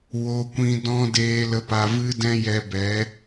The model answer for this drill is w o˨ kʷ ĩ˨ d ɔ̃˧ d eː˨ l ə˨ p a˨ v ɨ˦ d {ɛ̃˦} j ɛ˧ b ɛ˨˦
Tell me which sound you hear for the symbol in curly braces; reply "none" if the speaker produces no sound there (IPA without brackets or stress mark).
ɛ̃˦